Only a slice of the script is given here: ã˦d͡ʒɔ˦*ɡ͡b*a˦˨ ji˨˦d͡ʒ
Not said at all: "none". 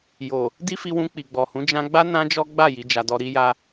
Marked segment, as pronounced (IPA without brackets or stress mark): ɡ͡b